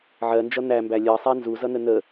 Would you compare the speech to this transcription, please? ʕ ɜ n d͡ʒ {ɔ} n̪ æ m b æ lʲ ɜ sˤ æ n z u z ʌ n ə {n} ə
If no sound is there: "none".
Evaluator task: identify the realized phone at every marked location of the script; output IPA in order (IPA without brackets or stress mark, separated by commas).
ʌ, n